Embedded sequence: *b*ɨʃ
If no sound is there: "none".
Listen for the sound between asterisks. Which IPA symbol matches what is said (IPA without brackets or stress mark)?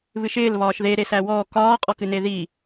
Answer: β